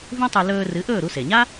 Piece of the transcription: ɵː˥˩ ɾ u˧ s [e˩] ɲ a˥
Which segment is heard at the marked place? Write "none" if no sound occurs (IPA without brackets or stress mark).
e˩